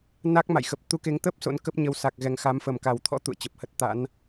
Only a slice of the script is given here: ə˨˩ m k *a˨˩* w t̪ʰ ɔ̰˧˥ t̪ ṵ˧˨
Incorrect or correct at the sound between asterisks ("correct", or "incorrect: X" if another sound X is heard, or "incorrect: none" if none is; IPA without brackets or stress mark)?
correct